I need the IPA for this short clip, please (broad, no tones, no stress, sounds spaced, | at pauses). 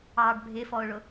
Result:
ɑ ɖ bʱ ɪ f ɔ ʊ̯ ɭ ʊ